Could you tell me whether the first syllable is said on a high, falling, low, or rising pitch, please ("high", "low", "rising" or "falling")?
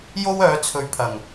high